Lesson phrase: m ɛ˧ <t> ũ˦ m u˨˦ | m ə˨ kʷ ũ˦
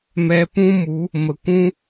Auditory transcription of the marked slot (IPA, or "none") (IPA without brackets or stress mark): p